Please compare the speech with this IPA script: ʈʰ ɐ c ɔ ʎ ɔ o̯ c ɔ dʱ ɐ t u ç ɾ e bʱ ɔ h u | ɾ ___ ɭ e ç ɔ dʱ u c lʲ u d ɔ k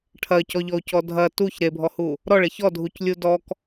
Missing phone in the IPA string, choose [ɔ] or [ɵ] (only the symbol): ɔ